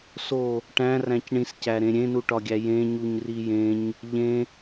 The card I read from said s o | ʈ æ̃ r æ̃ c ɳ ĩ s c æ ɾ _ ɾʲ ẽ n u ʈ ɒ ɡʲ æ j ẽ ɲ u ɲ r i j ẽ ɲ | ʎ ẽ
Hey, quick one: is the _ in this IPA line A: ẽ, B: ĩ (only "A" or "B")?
A